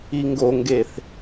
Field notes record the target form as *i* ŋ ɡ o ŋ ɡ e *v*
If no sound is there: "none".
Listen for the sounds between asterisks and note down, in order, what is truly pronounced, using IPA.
i, θ

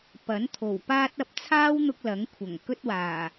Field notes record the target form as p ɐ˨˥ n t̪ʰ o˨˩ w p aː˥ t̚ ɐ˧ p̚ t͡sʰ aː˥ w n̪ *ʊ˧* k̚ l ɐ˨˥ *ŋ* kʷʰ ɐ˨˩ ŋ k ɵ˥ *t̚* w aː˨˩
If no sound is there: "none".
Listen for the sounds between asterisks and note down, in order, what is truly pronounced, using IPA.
ʊ˧, ŋ, t̚

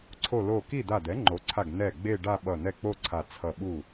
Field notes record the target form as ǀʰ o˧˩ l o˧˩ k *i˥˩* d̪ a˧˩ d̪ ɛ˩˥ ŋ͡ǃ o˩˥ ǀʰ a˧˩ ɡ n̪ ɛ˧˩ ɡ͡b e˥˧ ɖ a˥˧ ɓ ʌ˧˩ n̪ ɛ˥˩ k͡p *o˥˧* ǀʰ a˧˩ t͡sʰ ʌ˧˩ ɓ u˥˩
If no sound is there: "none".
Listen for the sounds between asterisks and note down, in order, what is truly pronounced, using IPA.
i˥˩, o˥˧

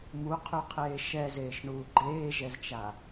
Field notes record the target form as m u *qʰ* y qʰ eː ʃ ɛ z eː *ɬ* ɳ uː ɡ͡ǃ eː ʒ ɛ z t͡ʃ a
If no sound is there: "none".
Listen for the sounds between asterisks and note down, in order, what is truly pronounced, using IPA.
qʰ, ʃ

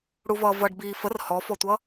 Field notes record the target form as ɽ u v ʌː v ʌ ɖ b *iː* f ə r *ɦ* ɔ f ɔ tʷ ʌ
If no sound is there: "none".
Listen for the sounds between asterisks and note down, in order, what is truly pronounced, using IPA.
iː, h

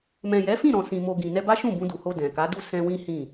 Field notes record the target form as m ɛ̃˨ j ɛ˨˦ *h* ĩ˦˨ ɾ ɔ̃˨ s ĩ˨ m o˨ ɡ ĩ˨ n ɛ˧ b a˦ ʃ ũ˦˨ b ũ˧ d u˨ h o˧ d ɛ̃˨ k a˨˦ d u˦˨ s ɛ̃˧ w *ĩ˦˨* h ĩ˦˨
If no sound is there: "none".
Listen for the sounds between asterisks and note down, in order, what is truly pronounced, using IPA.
f, ĩ˦

